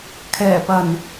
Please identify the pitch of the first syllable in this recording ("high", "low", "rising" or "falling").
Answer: low